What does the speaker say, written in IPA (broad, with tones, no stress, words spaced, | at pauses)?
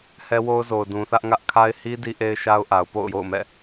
hɛ˦wo˦ʊ̯zo˨ʊ̯ dũ˨θä˦ʔŋä˦ʔ kʰa˦ɪ̯hi˦ di˦ʔe˦ɪ̯ ʃa˦ʊ̯ʔa˨ʊ̯ po̰˦˨ʊ̯jo̰˦˨ʊ̯mɛ̰˦˨